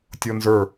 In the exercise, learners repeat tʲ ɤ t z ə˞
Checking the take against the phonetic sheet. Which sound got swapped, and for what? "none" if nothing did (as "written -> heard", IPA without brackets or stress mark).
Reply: t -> n